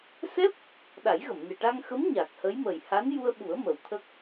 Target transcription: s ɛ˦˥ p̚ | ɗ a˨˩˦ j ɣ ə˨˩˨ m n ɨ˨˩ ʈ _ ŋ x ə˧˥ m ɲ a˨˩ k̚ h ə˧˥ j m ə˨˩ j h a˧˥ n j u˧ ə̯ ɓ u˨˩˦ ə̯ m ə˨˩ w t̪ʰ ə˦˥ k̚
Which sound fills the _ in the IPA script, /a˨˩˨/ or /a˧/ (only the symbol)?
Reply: a˧